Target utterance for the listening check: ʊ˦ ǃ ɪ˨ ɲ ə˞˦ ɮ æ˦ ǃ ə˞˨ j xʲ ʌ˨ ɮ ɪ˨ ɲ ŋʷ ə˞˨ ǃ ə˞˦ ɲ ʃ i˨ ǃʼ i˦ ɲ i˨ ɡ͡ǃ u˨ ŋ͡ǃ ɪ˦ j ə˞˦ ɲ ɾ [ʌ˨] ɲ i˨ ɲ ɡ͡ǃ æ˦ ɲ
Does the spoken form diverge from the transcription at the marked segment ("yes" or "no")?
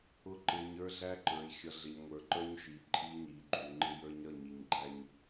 yes